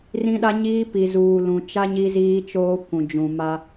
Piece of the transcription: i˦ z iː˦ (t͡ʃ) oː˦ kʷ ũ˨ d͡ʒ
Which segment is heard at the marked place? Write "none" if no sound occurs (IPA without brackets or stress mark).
t͡ʃ